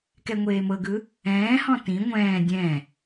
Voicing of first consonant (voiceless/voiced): voiceless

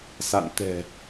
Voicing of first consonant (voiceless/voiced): voiceless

